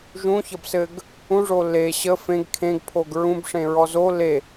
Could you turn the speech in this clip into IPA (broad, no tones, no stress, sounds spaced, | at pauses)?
ʒ ũ ç ʌ b s ɘ ɡ | ũ ʐ o l e ɕ ə f ẽ ɡ kʰ ẽ ɡ pʰ o ɡ ɹ ũ b ʂ ẽ ɹ ɔ z o l e